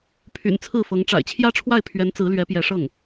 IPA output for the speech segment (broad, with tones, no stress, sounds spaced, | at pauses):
pʰ y̰˨˩ n t͡sʰ ɹ̩˥˩ f ɤ˧˥ ŋ ʈ͡ʂ a̰˨˩ ɪ̯ t͡ɕʰ j ä˥ ʈ͡ʂʰ w a˥˩ ɪ̯ pʰ ɥ ɛ˧˥ n t͡s ɹ̩˧˥ l ɥ ɛ˧˥ p j ɛ˧˥ ʂ ɤ˥˩ ŋ